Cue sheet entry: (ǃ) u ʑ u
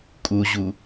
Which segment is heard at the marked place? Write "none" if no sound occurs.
kʼ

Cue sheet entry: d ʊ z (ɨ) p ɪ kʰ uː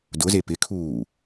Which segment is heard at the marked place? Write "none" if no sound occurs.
e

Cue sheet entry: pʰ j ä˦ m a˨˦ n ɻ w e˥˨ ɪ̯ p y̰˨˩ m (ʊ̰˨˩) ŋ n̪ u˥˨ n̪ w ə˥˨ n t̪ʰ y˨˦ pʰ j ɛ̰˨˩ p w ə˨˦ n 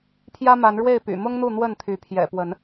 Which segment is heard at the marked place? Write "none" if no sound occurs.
ʊ˦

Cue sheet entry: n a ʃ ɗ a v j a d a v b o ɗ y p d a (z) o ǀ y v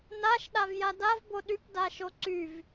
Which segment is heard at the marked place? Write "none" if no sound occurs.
ʃ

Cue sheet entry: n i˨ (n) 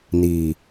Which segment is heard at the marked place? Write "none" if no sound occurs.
none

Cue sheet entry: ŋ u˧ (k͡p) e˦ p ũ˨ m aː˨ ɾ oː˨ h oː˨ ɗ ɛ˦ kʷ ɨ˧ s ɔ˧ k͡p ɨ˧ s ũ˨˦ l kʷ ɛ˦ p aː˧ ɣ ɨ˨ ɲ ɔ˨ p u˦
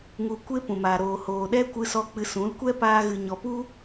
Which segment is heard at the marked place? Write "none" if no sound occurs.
kʷ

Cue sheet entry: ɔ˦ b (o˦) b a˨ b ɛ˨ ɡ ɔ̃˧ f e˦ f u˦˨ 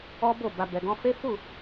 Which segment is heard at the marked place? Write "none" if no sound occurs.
o˦˨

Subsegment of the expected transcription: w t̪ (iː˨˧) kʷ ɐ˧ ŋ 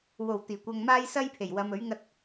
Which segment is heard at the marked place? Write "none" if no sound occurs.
iː˨˩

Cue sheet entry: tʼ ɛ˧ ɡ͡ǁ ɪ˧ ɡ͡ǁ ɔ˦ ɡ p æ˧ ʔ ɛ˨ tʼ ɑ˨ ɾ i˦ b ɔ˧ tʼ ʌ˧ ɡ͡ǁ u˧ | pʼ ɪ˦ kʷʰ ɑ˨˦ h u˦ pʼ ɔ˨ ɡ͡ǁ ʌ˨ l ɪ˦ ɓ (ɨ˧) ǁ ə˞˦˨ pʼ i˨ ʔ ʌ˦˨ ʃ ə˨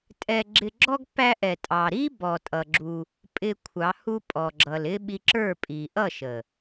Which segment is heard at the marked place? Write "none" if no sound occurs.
i˧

